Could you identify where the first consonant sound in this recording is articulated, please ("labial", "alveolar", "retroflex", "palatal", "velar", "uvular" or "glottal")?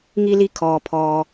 velar